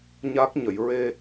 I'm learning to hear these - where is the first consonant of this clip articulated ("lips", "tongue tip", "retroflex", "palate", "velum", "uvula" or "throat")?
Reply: palate